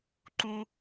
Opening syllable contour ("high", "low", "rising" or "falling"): low